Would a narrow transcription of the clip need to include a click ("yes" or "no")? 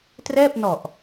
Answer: no